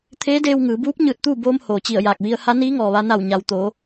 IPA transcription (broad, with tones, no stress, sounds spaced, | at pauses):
t̪ʰ eː˧˥ d eː˧ w ŋ ɯː˩˧ b uː˧˥ p̚ ɲ ɯː˧˩ t̚ t̪ uː˥˨ b oː˧ m h oː˩ t͡ɕ i˧˩ ə̯ j aː˧˩ k̚ ʋ i˧ ə̯ h a˧˥ n iː˧˥ ŋ ɔː˩ ʋ a˧ n a˧˩ w ɲ a˩ w t̪ oː˩˧